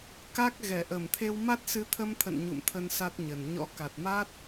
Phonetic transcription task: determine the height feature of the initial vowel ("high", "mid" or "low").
low